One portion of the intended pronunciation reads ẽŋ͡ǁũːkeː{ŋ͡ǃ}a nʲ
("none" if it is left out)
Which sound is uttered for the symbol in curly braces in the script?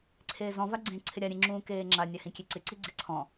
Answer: ŋ͡ǁ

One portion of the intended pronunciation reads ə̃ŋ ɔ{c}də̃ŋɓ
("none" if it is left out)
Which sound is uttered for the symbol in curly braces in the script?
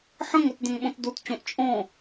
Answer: t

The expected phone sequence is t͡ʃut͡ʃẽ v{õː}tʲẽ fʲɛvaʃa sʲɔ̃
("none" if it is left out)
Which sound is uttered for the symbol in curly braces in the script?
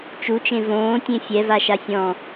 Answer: õː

